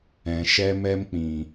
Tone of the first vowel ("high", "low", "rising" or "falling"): low